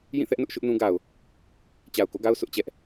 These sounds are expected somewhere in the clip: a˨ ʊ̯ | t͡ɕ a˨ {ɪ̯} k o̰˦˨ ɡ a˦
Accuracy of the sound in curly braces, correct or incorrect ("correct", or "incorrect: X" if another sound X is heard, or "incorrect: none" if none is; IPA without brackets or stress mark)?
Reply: incorrect: ʊ̯